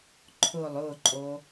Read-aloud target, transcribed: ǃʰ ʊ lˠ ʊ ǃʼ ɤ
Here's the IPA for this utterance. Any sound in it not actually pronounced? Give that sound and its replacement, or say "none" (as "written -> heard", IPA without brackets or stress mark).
ɤ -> o